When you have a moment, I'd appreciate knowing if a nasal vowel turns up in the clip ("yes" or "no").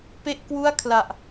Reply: no